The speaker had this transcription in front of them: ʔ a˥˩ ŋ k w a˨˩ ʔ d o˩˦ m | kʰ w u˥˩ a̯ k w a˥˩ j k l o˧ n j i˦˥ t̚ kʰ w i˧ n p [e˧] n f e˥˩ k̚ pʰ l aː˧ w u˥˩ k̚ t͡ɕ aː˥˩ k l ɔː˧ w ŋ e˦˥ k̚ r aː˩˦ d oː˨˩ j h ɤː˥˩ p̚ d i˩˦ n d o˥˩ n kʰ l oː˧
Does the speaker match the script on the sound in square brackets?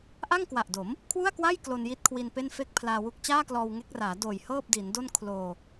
no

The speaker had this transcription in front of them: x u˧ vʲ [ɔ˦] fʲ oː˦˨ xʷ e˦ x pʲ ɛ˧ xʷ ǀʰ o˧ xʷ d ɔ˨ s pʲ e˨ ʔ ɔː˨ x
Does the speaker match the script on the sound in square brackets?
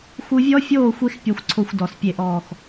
yes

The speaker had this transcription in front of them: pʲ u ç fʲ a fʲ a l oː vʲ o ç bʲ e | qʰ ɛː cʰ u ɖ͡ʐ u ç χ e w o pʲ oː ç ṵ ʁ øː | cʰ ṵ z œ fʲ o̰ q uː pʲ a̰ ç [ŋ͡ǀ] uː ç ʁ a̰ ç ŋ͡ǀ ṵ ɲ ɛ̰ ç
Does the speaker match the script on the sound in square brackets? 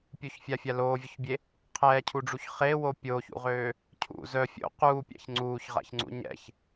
yes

